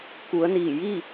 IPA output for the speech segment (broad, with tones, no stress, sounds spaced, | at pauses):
k u˩˧ ə̯ n iː˧˩ j i˥˨